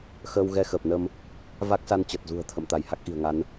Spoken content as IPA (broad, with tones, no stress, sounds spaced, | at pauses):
x əː˧ w ɣ ɛ˧ x əː˨˩ p̚ n ə˧ m | v a˦˥ k̚ s a˧ n t͡ɕ ə˨˩ t̚ z ṳ˨˩ ə̯ t̪ʰ ə̰˧˨ m t̪ a˧˩ j h a˦˥ k̚ ʔ i̤˨˩ ə̯ ŋ a˨˦ n